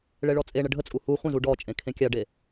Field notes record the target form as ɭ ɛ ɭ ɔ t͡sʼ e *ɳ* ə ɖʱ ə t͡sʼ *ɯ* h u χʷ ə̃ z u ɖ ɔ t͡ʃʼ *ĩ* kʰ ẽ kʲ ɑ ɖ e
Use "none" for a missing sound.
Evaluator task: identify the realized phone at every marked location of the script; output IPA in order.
ɳ, u, ẽ

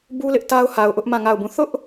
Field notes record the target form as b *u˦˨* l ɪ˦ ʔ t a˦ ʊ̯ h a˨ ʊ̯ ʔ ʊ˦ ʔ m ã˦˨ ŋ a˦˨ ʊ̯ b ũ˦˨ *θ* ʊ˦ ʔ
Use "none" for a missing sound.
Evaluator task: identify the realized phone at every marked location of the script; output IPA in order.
u˦, θ

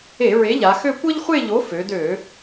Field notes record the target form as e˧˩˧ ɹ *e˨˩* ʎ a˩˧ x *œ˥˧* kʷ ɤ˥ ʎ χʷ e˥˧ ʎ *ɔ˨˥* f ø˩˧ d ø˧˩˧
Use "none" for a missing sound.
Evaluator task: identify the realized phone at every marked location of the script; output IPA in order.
e˨˥, ø˥˧, o˨˥

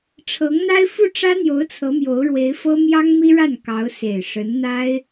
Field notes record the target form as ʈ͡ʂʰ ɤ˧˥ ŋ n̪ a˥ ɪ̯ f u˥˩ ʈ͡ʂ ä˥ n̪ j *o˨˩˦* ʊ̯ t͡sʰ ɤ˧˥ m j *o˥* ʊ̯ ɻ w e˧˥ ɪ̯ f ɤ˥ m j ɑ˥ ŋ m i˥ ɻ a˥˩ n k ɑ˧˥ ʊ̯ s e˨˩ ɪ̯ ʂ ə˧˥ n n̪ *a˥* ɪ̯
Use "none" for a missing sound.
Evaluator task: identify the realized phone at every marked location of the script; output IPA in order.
o˧˥, o˧˥, a˥

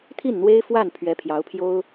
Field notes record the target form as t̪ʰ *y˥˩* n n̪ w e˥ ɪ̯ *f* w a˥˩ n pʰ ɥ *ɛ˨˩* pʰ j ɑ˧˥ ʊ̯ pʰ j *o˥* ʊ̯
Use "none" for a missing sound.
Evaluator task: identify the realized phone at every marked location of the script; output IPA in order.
i˥˩, f, ɛ˧˥, o˥

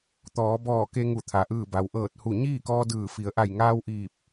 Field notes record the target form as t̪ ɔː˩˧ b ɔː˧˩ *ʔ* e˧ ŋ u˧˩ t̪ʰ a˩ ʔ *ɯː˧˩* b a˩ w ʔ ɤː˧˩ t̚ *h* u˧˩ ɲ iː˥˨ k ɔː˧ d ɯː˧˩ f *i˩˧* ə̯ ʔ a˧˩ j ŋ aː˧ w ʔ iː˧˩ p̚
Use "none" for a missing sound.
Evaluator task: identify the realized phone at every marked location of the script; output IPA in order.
k, ɯː˧˩, h, i˩˧

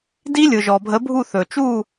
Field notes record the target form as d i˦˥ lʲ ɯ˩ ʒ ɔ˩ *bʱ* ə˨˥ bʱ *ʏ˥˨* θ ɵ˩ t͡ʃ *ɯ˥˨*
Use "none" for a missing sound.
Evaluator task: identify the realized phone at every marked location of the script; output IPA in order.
bʱ, u˥˨, u˥˨

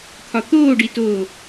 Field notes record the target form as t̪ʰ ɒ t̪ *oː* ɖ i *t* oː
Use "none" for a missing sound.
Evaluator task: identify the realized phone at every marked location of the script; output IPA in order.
oː, t

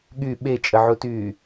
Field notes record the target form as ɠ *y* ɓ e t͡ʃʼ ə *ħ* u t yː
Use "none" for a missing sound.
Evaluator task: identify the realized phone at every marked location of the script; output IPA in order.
y, ʕ

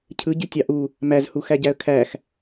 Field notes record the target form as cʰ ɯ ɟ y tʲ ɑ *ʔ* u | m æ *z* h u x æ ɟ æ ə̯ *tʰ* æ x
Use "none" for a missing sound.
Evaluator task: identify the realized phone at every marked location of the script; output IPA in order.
ʔ, z, kʰ

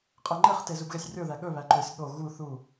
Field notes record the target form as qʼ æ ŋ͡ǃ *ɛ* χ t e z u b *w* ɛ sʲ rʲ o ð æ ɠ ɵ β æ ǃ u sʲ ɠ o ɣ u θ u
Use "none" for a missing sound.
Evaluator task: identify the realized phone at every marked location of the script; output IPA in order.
ɛ, ɣ

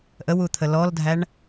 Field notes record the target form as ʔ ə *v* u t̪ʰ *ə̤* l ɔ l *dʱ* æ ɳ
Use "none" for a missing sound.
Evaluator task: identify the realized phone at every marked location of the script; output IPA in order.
w, ə, dʱ

